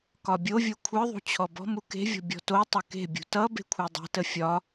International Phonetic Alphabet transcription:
k ɒ bʲ o vʲ o kʷʰ ə˞ ðˤ ṳ t͡ɕʰ ɔ b ɔ̤ m u k e̤ vʲ ɔ̤ bʲ ɔ̤ t o tˤ ʌ k e̤ bʲ ṳ t ʌ b e̤ kʷʰ ɛ dˤ e̤ t ə fʲ ɒ

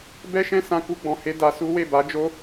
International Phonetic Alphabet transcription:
b ɛ˦ ʃ ɛ̃˦ s ã˧ k u˧ ɡ͡b ɔ̃˨ h e˧ d a˧ s u˦ w e˦˨ b a˨˦ d͡ʒ o˦

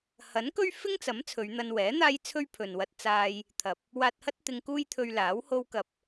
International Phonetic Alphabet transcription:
h ɐ˨˥ n k ɵ˥ ɥ f ɪ˥ ŋ t͡s ɐ˨˥ m t͡sʰ ɵ˨˧ ɥ n̪ ɐ˧ n w ɛː˨˥ n̪ aː˥ j t͡sʰ ɵ˥ ɥ pʰ ɵ˨ n w ɐ˧ t̚ t͡s aː˧ j | t̪ʰ ɐ˨ p̚ | w aː˧ t̚ h ɐ˥ t̚ t̪ ɪ˧ ŋ k uː˥ j t̪ʰ ɵ˧ ɥ l aː˨˥ w h o˥ w k ɐ˧ p̚

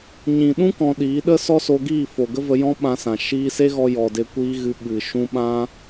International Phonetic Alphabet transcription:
ɲ ĩ˨ ɗ ũ˦ k ɔ̃˧ ɗ iː˨˦ ɗ ə˦ s ɔ˦ s o˧ ɡ iː˦˨ f o˨ ɡ ə˦ v ə˧ j ɔ̃˦ ɓ ã˧ s ã˨ ʃ iː˧ s e˦ ɣ ɔ˧ j ɔ˨ d e˧ kʷ iː˦ ɣ ɨ˧ ɓ ɨ˨ ʃ ũ˧ ɓ ã˦

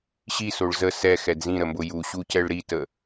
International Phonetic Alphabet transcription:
ɕ i s o ɭ z ə s ɛ x ɛ d z ĩ ɾ ə m b ʊ j u ɕ u c ɛ ɭ ɾ i t ə

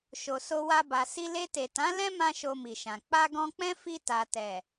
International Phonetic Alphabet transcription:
ʃ o˨ s o˧ w a˧ b a˨ s i˧ l e˧ t e˨ t ã˨˦ l ɛ̃˦ m ã˧ ʃ o˧ m i˨ ʃ ã˨ k͡p a˧ ɡ ɔ̃˧ k͡p ɛ̃˦ f i˧ t a˨ t ɛ˨

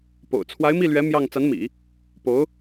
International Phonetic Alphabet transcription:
p o̰˨˩ ʊ̯ t͡sʰ w a˧˥ ɪ̯ m i˥˩ l ɥ ɛ˧˥ m j ɑ˥˩ ŋ t͡s a˧˥ n m ḭ˨˩˦ | p o˧˥ ʊ̯

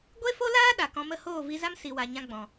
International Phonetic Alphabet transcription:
ɡʷ e˦ f o˦ l aː˦ ɗ a˨ k ɔ̃˧ m ə˦˨ h oː˦˨ v i˧ z a˦ m s i˨ w a˨ ɲ ã˧ ɡ͡b ɔ̃˨

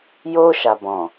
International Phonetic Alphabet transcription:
j o˧ ʃ a˨ b ɔ̃˨

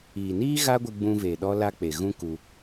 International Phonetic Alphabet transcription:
iː˨ n iː˦ ɣ a˦ ɡʷ ɨ˧ ɡ͡b ũ˧ v e˨ ɗ ɔ˦ l a˦ k͡p e˨ ɣ ũ˦ k u˧

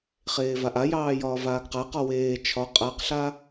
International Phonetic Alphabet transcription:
χ eː v a ʔ a j ɑː j ɒː v aː ɡ q a q ɒ w eː t͡ʃʰ ɒ qʼ a q ɬ a

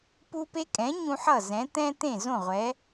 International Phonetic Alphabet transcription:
p u˦ p e˦ kʼ ɛ̃˨˥ ɲ ũ˦ ħ ʌ˥˩ z ɛ̃˨˥ t̪ ɛ̃˦ t̪ ẽ˥˩ z õ˥˩ ʁʷ ɛ˨˥

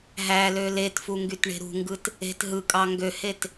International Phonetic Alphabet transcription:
ɦ æ l ø l e t f u ŋ ɡ y t ɳ e̤ ɾ ṳ ŋ ɡ ɯ t | e̤ t ɦ ɯ kʼ ɑ ŋ ɡ ø h e t

